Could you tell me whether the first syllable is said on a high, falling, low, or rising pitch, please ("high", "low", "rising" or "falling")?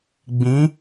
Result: rising